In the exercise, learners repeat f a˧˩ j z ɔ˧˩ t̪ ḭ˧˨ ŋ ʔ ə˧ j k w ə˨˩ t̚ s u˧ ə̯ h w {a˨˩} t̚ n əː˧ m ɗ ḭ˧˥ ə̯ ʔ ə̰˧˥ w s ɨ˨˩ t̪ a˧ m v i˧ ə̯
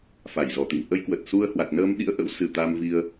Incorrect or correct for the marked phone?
correct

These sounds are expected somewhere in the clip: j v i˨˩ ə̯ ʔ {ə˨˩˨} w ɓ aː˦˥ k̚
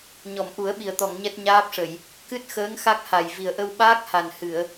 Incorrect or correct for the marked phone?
incorrect: ə˧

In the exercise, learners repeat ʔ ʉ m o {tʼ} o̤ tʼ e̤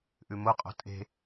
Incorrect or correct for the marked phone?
incorrect: qʼ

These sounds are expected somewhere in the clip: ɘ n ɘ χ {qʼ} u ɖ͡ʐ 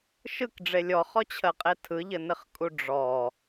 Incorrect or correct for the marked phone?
incorrect: kʼ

